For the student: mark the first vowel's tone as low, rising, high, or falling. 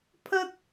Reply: high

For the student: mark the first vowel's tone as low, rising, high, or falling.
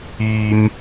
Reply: low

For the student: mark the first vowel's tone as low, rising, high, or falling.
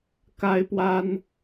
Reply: high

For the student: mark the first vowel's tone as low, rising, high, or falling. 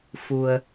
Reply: low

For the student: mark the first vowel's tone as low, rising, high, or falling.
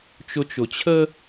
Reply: high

